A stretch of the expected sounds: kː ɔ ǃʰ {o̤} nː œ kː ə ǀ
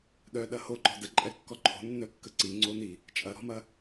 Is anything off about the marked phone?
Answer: no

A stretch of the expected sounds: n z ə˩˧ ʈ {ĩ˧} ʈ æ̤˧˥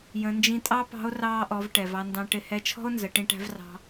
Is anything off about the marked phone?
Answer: no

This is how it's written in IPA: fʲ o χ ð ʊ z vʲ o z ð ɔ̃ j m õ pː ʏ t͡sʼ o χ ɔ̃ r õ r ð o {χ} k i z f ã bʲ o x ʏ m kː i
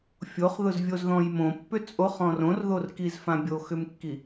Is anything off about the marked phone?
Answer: yes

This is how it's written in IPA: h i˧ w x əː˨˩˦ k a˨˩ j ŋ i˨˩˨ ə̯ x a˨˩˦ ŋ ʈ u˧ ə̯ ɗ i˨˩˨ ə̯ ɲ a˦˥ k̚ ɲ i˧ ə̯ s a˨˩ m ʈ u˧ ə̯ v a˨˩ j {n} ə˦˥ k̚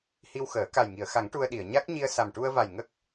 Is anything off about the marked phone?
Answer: yes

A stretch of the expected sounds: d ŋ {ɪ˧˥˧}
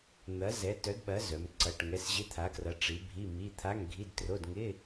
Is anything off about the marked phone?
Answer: no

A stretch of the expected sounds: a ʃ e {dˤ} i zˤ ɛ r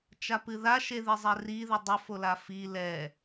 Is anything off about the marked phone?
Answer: yes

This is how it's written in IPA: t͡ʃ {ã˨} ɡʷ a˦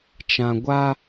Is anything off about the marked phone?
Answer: no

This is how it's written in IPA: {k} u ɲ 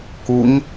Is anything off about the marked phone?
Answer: no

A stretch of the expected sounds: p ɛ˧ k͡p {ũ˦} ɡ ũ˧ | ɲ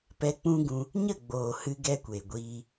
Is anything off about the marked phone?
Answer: no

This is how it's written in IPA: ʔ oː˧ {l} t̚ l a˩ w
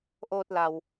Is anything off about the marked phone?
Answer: yes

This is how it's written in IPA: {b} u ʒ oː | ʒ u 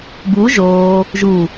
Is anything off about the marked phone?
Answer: no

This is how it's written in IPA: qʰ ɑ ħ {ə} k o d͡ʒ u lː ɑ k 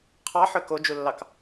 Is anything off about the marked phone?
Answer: yes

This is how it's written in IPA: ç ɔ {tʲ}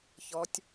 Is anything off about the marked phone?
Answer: no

